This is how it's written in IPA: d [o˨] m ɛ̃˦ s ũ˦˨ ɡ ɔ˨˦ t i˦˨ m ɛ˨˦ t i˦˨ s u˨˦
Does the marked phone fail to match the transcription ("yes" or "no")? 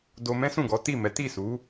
yes